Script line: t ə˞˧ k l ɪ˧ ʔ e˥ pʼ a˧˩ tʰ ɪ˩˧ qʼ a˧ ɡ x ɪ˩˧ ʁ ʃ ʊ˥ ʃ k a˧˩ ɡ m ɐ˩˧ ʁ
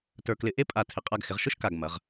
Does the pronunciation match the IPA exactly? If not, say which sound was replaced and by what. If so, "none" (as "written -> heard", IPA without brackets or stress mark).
none